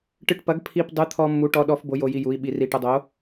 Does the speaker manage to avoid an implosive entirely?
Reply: no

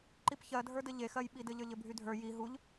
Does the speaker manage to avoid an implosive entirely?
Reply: no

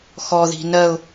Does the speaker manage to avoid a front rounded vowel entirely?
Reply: yes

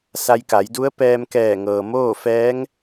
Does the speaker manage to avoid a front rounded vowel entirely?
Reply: yes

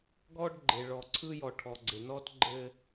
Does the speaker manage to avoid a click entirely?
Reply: no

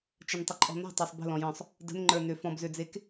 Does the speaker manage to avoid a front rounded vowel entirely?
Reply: no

